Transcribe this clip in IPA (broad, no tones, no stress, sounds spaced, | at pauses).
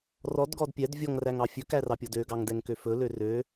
r ɔ d ɡ ɔ d pʲ ɛ d vʲ ɔ ŋ r æ ŋ ɑ fʲ ɵ k æ r ɑ pʲ ɔ d ø ɡ ɑ ŋ d ɛ ŋ k ø f ɵ l ø r ø